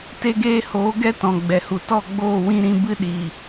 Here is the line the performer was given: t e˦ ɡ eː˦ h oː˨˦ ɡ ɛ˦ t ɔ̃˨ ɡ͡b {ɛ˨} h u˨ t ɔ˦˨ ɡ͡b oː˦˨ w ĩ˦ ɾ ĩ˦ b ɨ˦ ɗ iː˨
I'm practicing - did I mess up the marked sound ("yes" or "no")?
no